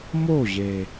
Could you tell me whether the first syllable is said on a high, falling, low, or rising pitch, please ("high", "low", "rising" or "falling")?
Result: falling